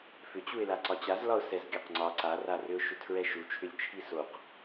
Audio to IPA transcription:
f ʏ t͡ɕ u ɪ̯ l a ǀ ɒ t͡ɕ a z l ɒ ʊ̯ s ɛ z ɡʲ ɒ q ŋ͡ǀ ɒ ǀ a r a r ʏ ʊ̯ ʃ ʏ tʰ ɹ ɛ ʃ u t͡ʃʰ ʏ lʲ t͡ʃʰ i s o q

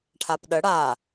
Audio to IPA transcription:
ʈʰ a p ɗ ə ɽ a

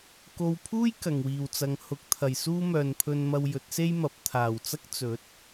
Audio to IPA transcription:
k o˨ w pʰ uː˥ j k ɐ˨˩ ŋ w iː˨˩ w t͡s ɐ˨˧ ŋ h ʊ˨˥ k̚ t̪ʰ ɐ˨˩ j s uː˥ m œː˨ n pʰ ɵ˧ n m ɐ˧ w j ɵ˨˥ t̚ s e˥ j m ɐ˨˥ p̚ t̪ʰ aː˨˩ w t͡s ɐ˥ k̚ t͡s ɵ˨˥ t̚

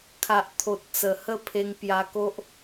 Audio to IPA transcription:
kʰ a˨ ʔ t̪ʰ o˨ t̚ t͡s ə˨˩ h ə˥˧ pʰ e˧ ŋ p j a˧ k o˦ ʔ

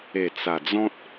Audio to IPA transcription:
e˨˩ t͡s a˨˩ d͡z ɔ̃˦ t̚

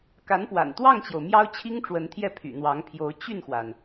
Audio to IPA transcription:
k a˧˥ n p w a̰˨˩ n t̪ w ɑ˥˩ ŋ t͡ɕ j o˩ ʊ̯ m j ɑ˥ ʊ̯ t͡ɕʰ i˥ ŋ ʈ͡ʂ w ə˧˥ n t̪ʰ j ɛ˥˩ pʰ y̰˨˩ n̪ w ɑ˧˥ ŋ pʰ j o˧˥ ʊ̯ t͡ɕ y˥˩ n x w a˩ n

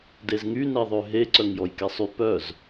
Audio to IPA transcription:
d e z ŋ y n ɛ ðˤ ø ɦ e ǀ œ ŋ j ɔ j k ɛ sˤ y p œ z

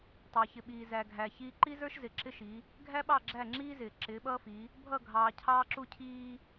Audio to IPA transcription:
tˤ ɑ˨ ç ɪ˨ ɓ iː˨ z æ˨ ɡʱ æ˨ ç iː˦ ǃ i˦ z ə˞˦ ʃ z ɪ˨ ǁ ɪ˦ ʃ i˨˦ | ɡʱ æ˦ ɓ ɑ˦˨ ɡ͡ǁ æ˦˨ ŋ͡ǁ iː˦ z ɪː˨ ǁ ɪː˨˦ ɓ ʌː˦ f i˨˦ | bʱ ʌ˦˨ ɡʱ ɑː˨ cʰ ɑː˦ ǁ u˦ cʰ iː˦

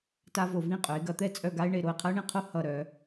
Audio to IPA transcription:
t a˥ v o˧ v ĩ˥˧ qʼ œ˩˧ ɪ̯ ɡ ɐ˧ t̪ ɛ˥˧ t͡sʼ œ˥˧ ɡ a˥ ɪ̯ ɳ e˥˧ ɾ o˧˩ ɪ̯ qʰ ɐ˥ ʊ̯ ɳ ĩ˧˩ qʰ o˥ h ʌ˧˩ ɾ œ˩˧

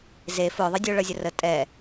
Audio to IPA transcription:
z e f ʊː ðˤ ʌ dʲ ʊː ɭ ʌ zʲ ə r ə tʼ ɛ

